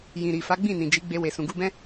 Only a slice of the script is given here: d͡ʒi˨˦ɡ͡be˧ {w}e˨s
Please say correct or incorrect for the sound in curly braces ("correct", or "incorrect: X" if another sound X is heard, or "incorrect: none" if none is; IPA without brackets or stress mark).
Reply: correct